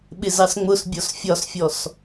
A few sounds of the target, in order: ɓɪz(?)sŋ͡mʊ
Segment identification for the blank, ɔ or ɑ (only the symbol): ɑ